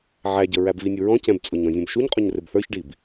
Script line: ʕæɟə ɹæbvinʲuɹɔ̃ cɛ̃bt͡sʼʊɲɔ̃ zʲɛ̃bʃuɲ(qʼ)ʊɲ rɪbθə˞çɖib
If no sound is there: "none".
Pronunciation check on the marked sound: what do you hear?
qʼ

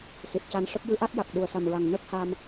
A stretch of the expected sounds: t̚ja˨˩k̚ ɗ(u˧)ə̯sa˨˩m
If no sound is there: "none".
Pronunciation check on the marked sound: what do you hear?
u˨˩˨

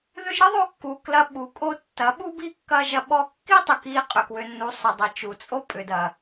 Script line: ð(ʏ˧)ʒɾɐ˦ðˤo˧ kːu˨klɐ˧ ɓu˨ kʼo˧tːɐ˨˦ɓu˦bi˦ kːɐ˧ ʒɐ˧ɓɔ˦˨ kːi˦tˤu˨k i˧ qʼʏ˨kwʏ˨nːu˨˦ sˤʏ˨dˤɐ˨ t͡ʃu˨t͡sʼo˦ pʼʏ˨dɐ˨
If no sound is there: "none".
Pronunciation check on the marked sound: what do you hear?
ʏ˧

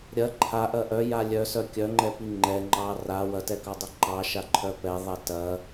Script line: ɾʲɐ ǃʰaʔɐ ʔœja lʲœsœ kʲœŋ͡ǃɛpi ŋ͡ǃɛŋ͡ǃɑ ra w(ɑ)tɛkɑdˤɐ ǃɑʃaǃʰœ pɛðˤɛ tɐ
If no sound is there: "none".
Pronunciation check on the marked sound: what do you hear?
ɐ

